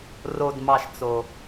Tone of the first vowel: low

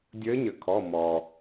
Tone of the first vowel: rising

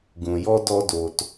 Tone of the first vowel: low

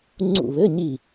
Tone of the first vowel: falling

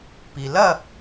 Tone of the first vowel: low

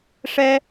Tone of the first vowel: high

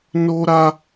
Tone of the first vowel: high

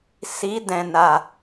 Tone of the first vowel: rising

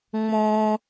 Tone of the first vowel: high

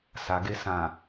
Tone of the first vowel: low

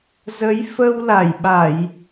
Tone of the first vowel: rising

